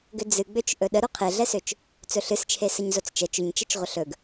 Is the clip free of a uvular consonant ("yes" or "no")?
no